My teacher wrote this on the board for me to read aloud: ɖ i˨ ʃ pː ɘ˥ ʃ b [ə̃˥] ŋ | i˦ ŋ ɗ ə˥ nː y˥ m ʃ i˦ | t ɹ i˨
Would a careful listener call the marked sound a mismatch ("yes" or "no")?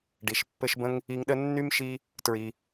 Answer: no